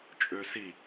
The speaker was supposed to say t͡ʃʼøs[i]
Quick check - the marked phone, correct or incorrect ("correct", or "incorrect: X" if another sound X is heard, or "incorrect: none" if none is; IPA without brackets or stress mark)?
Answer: correct